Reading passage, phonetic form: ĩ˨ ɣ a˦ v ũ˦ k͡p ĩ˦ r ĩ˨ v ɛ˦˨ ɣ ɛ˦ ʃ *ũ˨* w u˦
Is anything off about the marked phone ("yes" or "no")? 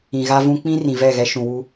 no